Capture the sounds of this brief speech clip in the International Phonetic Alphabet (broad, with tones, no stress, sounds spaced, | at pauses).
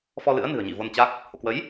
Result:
f ɔ˧ l ɨ̰˧˥ ə̯ n ɨ̤˨˩ ə̯ ɲ ḭ˧˨ v o˧ n t͡ɕ a˦˥ k̚ | h o̰˧˨ k w ə˨˦ j